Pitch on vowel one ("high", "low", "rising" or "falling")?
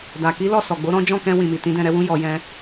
low